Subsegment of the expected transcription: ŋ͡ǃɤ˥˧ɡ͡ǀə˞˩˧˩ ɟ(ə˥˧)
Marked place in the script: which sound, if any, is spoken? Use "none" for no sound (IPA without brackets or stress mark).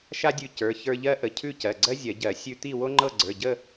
ə˥˧